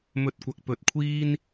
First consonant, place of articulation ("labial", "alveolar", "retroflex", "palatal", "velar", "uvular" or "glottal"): labial